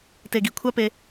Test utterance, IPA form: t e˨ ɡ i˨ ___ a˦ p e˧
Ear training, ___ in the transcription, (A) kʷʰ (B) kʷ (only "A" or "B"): A